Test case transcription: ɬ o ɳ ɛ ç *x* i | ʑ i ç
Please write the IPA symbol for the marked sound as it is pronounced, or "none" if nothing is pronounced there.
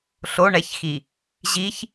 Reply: x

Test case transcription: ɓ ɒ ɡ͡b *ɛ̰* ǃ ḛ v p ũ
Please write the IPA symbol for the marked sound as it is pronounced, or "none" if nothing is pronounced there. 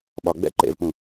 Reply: ɛ̰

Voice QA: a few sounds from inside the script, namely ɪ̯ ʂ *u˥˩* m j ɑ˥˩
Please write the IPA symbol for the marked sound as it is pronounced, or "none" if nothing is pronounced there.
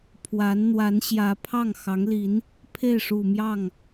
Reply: u˨˩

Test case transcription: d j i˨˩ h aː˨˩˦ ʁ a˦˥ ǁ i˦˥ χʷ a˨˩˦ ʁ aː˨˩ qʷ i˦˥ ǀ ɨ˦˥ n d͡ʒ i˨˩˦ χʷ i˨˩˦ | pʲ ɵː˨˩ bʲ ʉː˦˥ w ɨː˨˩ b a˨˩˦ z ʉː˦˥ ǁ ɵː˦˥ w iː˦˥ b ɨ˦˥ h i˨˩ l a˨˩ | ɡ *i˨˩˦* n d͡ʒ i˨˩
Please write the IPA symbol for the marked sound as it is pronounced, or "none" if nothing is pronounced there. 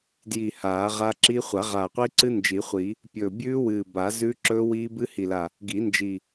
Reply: i˨˩˦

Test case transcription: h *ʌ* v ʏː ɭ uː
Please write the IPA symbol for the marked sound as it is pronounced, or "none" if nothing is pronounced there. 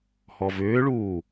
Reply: ɔ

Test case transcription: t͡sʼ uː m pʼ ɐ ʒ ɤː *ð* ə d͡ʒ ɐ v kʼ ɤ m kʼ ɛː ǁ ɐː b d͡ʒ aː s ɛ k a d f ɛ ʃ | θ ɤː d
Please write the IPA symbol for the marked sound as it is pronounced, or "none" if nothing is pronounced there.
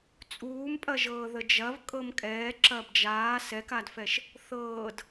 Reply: ð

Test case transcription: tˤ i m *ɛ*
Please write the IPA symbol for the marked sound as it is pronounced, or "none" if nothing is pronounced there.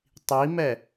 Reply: ɛ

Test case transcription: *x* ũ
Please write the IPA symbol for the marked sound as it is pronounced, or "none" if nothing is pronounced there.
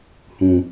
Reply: h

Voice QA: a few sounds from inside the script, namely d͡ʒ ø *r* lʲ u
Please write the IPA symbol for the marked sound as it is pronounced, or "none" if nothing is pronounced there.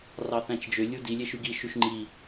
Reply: none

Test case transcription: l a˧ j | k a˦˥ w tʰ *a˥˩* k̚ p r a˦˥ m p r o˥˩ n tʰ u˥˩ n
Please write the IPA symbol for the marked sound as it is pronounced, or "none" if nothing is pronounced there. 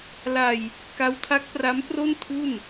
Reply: a˦˥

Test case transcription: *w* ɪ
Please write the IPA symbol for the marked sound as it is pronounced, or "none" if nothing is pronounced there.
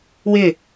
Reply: w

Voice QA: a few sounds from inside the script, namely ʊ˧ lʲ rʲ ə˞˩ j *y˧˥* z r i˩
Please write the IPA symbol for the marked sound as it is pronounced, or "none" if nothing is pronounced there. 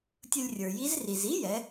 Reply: i˧˥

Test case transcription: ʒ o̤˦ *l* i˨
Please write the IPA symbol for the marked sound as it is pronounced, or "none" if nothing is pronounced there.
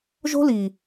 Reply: l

